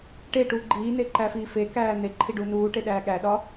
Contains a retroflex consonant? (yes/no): yes